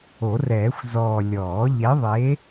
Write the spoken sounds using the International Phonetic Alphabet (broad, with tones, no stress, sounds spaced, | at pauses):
o˨˩˦ r ɛː˨˩˦ xʷ z ɔː˨˩ lʲ ɔː˨˩˦ ʎ e˨˥ ðˤ e˨˥